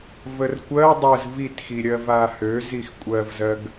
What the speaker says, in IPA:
vərkʷɜ dˤəz vitxiɾʲɜ vahø zixkʷʼɜvzɜɡ

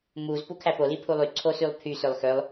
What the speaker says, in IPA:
muz pukʰæpo lipʰulˠy ǀʰosylˠpʰy sølˠxølˠ

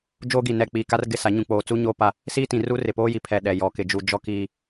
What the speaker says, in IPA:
d͡ʒoː˦ɡi˨ nɛ˨ k͡piː˨ ka˦rɡɪ˦˨sa˨˦ ɲũ˨k͡poː˨t͡su˦ ɲoː˦pa˦ | siː˦tĩ˨ru˦ rɪ˨poː˦ji˨ pʰɛ˦˨ ɗɛ˨ jɔ˨kɪ˦d͡ʒu˦ d͡ʒɔ˦kiː˦

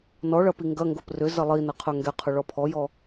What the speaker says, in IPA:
nɔɭɐ piŋɡɐŋɡop rʏzɐ lˠi nɐqʰœŋɡɛqʰʊ ɭɔpʰɔjɔ

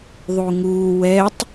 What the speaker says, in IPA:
ðˤuŋuː wɛtˤ

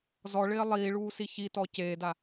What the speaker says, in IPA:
zɔɭɪː lˠiːɭuːsi çitɔ ceːda

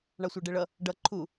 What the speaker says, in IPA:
ɳɑsʷɑɖɛɭʌ | ɖʌ ǃʰu

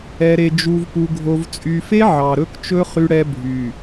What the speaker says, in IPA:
ɛ˨ɾe˨ d͡ʒu˨vpu˨ ɡʱo˨v t͡sʼy˨fe˦ ʕɑ˨ɾɵ˦kt͡ʃɵ˦ χy˦ɽɛ˦ bʱy˨

